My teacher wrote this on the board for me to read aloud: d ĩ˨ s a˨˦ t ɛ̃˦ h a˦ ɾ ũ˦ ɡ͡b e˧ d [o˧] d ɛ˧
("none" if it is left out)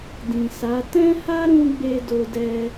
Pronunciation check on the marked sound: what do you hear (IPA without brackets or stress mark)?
o˧